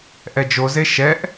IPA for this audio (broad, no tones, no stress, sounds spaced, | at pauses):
ʔ ɛ d͡ʒ o z e ʃ ɛ ʔ